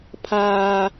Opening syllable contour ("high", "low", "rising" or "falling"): low